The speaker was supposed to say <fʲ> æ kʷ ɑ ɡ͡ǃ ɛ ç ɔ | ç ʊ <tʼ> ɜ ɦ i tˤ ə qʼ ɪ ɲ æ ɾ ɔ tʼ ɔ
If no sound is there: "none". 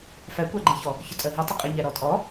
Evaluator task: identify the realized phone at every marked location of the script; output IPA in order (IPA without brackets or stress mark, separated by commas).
f, tʼ